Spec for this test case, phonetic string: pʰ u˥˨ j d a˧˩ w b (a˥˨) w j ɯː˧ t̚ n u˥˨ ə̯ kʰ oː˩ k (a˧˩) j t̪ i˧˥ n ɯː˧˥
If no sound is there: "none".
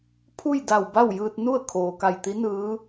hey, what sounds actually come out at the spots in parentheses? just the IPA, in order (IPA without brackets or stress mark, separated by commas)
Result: a˥˨, a˧˩